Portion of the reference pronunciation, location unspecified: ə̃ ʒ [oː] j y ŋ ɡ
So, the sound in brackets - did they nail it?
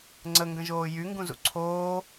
yes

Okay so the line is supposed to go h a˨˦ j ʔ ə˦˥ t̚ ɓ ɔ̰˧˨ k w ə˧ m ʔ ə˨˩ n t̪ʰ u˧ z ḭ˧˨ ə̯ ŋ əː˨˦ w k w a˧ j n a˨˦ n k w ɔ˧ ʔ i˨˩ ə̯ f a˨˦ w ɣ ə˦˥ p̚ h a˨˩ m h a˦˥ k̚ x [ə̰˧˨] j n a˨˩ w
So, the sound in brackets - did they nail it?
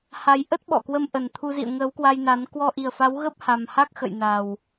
yes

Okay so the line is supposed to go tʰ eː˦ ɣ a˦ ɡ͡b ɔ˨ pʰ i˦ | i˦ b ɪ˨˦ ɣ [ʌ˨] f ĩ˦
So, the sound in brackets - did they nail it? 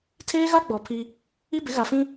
no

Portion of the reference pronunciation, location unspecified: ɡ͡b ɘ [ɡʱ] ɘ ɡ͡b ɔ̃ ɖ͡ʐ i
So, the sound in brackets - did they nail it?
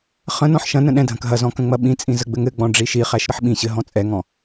no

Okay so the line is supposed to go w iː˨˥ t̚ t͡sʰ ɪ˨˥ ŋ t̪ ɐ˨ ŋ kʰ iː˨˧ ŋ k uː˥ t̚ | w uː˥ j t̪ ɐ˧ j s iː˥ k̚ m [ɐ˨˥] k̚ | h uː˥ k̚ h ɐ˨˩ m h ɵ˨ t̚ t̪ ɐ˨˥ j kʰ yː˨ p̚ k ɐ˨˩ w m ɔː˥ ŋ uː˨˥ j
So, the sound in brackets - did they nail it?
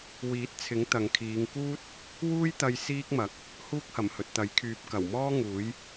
yes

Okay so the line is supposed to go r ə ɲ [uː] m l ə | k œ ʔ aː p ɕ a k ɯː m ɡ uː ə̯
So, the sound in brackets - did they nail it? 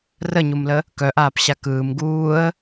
no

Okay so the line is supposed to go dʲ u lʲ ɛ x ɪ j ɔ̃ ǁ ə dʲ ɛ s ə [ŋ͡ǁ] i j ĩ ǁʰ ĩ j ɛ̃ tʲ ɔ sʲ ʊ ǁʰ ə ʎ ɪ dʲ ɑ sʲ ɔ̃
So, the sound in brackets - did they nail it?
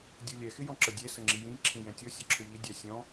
yes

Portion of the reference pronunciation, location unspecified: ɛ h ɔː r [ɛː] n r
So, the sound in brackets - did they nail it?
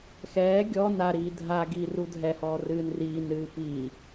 no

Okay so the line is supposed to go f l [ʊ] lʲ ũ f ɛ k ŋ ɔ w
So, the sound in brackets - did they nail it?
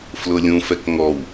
yes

